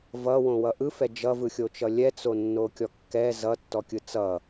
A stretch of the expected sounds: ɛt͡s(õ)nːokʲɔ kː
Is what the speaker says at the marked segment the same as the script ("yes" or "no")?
no